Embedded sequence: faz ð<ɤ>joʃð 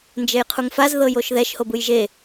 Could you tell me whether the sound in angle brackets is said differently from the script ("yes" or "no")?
no